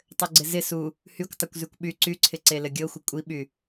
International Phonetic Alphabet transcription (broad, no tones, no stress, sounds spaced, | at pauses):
tˤ ɘ ɡ͡ǀ ɪ z ɪ s u | h y kʷ tˤ ɪ kʷ z y kʷ ɓ y ǀ y ǀʰ ɪ ǀ e l ɘ ɡʲ ɤ xʷ ɪ kʷʼ i ɓ y